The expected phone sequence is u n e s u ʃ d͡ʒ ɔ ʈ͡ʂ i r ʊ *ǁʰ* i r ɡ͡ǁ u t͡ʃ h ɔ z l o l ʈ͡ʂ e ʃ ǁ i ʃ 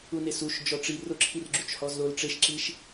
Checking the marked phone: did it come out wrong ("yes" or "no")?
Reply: no